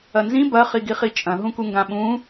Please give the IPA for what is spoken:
ɐnzĩ bɐ χiɡiχit͡ʃʼɐ̃ ɦũkuŋɡãɓũ

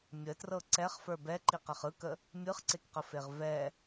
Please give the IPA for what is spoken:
mʲətrɤ ǀɛχfə˞ bɛ ǃiqɛχɯkə | mʲɯχǀekqəfeʁ vɛ

